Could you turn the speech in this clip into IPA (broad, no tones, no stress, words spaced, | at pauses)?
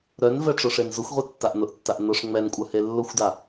ɾœnvɛ ʈ͡ʂʊʂenzʊxʷʁʷe tːaʔnʊʔtːaʔ nʊʂ ŋ͡mɛn kʷʼœhelːʊxʷda